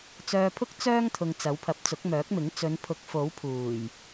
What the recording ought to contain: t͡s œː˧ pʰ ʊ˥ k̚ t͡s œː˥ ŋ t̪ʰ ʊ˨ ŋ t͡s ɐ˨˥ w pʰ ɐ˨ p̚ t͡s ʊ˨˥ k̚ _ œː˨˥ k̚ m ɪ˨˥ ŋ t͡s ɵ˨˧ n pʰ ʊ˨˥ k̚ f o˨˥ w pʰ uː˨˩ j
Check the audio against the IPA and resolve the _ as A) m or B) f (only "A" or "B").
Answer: A